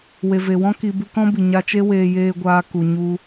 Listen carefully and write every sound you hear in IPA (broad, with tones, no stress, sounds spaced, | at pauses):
w e˨ v e˨ w ɔ̃˦ k i˦ b ɨ˧ k ɔ̃˦ b i˨ ɲ a˧ t͡ʃ e˦ w eː˧ j eː˧ ɡʷ aː˧ k u˨ ɲ u˧